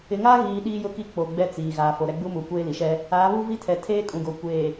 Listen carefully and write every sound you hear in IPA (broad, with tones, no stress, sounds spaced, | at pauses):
ɪ˨ ŋ aː˦ ɣ iː˨ ɗ iː˦ j ʊ˦ k i˦ k͡p o˨ ɡ͡b ɛ˦ t͡s iː˨ ɣ aː˨ f o˨ ɾ ɛ˦ ɡ͡b u˦ m u˨ kʷ eː˦ l i˨ ʃ ɛ˦ | aː˨˦ β u˦ v i˦ tʰ ɛ˨ tʰ eː˦ kʼ ũ˨ ɡ o˨ kʷ eː˨